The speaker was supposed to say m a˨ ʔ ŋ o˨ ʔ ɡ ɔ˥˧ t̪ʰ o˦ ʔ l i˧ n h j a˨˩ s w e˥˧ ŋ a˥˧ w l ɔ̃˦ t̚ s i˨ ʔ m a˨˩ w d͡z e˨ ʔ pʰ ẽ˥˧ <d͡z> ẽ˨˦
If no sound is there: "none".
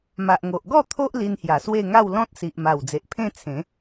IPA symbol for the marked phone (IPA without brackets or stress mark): t͡sʰ